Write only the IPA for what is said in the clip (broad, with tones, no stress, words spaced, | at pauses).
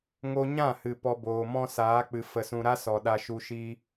ŋo˧ɲã˦˨hɨ˨ pɔ˧boː˨mɔ̃˦ saː˨˦k͡pɨ˨ fə˨sũ˨ɾa˦ sɔ˨ɗa˧ʃu˧ ʃiː˧